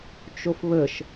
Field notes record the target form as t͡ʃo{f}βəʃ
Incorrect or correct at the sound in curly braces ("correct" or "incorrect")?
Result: correct